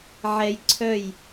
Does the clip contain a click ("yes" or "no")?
yes